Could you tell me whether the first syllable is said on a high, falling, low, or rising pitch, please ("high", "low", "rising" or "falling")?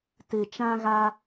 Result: low